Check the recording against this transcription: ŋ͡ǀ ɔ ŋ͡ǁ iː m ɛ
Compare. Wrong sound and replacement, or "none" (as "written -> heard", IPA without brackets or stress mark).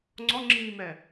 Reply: none